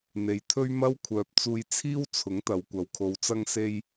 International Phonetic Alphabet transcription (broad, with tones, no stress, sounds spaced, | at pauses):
n̪ e˨˧ j t̪ʰ ɵ˥ ɥ m ɐ˥ w kʷʰ œː˧ p̚ t͡s uː˧ j t͡sʰ iː˥ w t͡sʰ ʊ˨˥ ŋ t̪ ɐ˨ w kʷ ɐ˨ w kʰ o˨˧ w t͡s ɐ˥ ŋ s e˥ j